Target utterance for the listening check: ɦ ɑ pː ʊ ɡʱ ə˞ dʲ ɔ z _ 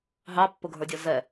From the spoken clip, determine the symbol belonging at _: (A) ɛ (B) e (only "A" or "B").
A